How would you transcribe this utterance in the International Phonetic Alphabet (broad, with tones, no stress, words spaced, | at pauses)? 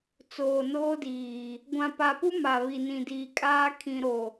t͡soː˨noː˦diː˨ | ɡʷã˨pa˨pu˦ ma˨ βi˨nĩ˨diː˨ kʼaː˦ kʰĩ˨ɾo˨